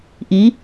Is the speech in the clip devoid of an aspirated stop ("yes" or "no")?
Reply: yes